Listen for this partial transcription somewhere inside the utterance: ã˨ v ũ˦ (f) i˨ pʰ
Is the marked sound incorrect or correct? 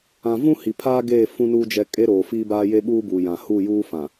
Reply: incorrect